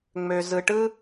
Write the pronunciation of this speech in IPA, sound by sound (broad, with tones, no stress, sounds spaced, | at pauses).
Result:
ŋ͡m ø˩ z ɯ˩ ʈ ɯ˥